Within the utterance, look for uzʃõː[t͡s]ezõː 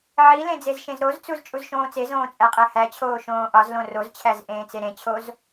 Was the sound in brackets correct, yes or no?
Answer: yes